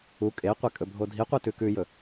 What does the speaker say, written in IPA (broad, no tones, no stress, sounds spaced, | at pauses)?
u kʼ e qʷ e kʼ ɵ bʱ o dʱ i qʷ i t ʉ k ʉ j ɵ